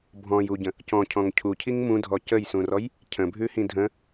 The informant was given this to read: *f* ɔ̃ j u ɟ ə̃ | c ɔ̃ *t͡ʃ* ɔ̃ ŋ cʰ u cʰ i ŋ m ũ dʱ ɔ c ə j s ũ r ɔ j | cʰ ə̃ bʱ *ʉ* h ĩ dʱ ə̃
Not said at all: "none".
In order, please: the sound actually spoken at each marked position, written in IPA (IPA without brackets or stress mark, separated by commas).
bʱ, cʰ, ʉ